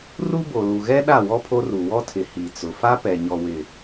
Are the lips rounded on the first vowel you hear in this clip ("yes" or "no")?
yes